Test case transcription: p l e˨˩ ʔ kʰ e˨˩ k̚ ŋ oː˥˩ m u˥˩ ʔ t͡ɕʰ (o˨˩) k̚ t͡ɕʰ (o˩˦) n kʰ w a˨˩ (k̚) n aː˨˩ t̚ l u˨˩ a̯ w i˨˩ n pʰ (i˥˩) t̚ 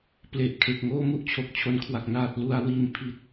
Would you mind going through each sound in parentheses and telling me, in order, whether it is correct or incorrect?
correct, correct, correct, incorrect

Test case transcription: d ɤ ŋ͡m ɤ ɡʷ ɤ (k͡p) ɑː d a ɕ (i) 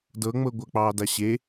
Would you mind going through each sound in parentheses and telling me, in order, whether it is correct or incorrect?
correct, incorrect

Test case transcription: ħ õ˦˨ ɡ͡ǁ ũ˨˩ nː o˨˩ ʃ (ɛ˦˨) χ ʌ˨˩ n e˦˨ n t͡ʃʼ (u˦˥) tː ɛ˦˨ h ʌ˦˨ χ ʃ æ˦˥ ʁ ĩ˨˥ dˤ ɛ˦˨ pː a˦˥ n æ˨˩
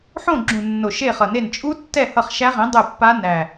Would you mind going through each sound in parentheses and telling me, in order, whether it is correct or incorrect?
incorrect, correct

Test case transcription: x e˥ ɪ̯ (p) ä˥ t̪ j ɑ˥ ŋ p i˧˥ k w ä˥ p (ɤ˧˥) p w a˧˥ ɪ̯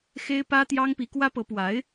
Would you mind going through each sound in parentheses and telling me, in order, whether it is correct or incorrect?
correct, correct

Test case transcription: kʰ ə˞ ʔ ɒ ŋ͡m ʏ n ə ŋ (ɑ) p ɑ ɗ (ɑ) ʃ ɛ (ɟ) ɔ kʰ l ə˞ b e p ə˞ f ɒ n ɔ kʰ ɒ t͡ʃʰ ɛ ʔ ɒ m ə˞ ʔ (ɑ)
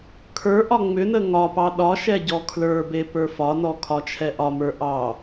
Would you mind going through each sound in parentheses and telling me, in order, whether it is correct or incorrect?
incorrect, incorrect, correct, correct

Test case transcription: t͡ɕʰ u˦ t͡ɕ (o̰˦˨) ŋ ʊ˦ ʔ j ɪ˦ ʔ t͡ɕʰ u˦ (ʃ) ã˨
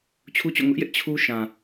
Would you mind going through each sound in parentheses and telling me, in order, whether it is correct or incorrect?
correct, correct

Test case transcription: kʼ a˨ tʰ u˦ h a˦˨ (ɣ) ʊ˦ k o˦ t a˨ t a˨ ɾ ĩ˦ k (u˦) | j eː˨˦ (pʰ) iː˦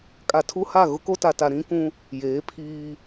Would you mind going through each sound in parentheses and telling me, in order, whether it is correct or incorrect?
correct, incorrect, correct

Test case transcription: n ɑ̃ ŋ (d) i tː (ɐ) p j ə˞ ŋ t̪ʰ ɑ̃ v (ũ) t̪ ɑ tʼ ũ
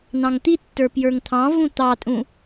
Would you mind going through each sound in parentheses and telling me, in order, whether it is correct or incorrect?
incorrect, incorrect, correct

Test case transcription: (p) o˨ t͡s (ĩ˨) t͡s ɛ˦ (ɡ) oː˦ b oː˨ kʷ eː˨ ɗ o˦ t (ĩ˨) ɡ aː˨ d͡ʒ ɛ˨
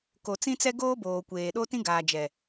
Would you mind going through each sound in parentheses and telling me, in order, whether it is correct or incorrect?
incorrect, incorrect, correct, incorrect

